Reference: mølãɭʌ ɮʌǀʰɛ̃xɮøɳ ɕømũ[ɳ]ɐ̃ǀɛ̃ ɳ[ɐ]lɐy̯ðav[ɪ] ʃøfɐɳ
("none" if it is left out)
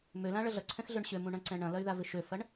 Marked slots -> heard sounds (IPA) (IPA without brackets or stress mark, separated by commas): ɳ, ɐ̃, ɪ